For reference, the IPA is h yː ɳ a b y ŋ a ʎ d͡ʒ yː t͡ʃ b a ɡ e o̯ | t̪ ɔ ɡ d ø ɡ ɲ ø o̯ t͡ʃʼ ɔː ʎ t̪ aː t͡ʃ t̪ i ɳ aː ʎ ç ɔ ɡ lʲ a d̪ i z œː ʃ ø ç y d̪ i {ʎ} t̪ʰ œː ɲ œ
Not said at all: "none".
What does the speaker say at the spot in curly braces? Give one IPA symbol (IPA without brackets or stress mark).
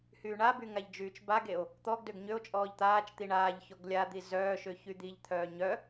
ʎ